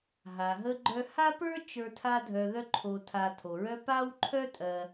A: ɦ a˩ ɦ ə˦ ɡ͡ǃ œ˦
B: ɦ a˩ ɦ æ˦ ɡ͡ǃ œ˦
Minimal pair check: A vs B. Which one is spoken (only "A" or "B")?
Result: A